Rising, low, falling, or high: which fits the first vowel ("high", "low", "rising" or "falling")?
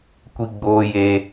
high